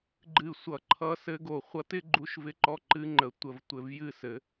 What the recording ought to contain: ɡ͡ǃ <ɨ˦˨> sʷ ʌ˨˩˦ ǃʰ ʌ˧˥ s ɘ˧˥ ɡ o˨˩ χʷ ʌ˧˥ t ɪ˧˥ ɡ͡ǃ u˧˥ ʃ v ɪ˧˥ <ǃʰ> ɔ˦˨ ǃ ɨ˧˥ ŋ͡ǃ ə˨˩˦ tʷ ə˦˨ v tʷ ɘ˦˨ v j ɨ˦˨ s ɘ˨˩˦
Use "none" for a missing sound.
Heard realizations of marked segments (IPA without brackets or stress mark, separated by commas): ɨ˨˩, ǃ